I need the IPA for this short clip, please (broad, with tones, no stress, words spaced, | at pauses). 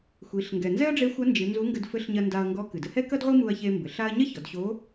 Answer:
xʷi˩˧ɬ ŋɡɛ˩nzɛ˥ɐ̯ɖ͡ʐe˧˥ xʷɐ˧˥nd͡ʒɨ˩˧ nzu˧˥ŋɡɘ˧dfɘ˧˥ɬɲɐ˧ nda˧ɐ̯ŋɡɔ˧˥ kɨ˩dɘ˧hɛ˥kɐ˥d ʁʷi˥mu˧ɐ̯çe˧mbɘ˩˧ɬ a˥ɐ̯ ɲɐ˥çɔ˩˧dɕo˧˥